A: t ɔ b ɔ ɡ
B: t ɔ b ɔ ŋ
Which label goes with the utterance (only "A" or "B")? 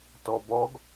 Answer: A